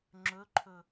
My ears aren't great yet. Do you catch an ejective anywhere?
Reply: no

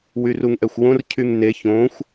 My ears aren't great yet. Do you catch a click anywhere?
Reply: no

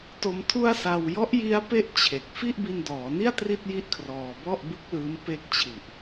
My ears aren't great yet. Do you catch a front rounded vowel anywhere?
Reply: no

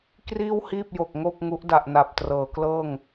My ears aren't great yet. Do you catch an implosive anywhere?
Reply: no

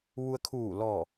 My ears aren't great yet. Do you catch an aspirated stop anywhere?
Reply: yes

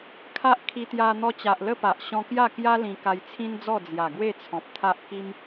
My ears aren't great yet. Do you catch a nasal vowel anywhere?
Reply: yes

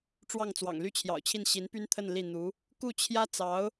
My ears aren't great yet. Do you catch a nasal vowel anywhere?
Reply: no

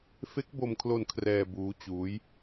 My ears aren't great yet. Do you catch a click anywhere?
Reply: no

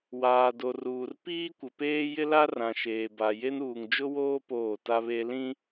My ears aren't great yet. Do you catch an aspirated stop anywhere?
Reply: no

